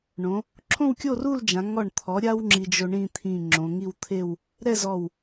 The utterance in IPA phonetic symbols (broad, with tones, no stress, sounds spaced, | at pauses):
ɳ õ˩˧ | ǁʰ õ˥˧ w kʲ o˥˧ r u˥˧ l d͡ʒ ã˩˧ ŋ ɔ˧˩ ɳ t̪ʰ ɔ˩˧ ɾʲ a˧ w ŋ͡ǁ i˧ d͡ʒ o˧ ɳ ĩ˥˧ t̪ʰ ĩ˧˩ ŋ͡ǁ õ˩˧ ŋ i˥˧ w t̪ʰ e˥˧ w | ɾ ɛ˥˧ z ɔ˧˩ w